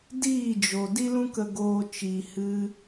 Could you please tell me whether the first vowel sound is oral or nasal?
oral